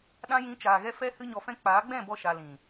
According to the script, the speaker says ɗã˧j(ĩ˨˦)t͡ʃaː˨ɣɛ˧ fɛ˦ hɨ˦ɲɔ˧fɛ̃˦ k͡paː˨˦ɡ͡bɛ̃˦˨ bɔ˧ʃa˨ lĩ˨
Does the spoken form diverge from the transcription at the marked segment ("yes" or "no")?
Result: no